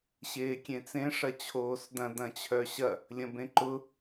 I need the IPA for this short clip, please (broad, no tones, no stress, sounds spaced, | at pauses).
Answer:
ɕ eː kʲ ẽ t͡s ẽ ʂ ɐ t͡ɕʰ oː s d ɐ̃ d ɐ̃ t͡ɕʰ œ ɕ ɐ | lʲ ɐ̃ b ẽ ǃ ʊ